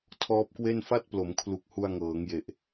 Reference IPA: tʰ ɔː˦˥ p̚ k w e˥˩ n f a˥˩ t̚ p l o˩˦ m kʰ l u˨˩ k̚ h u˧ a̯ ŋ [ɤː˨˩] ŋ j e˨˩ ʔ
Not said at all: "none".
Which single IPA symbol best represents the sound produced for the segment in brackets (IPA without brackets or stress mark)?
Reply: ɤː˩˦